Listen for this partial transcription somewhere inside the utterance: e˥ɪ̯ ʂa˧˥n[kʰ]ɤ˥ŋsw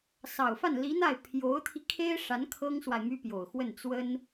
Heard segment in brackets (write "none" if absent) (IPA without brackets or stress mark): kʰ